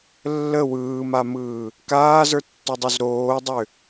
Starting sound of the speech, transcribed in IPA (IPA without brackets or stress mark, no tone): lː